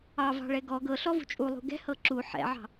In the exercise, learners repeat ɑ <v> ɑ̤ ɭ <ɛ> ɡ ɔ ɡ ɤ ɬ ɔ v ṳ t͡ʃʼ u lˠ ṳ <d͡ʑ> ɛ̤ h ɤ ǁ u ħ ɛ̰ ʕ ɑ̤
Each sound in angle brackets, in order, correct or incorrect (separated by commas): correct, correct, incorrect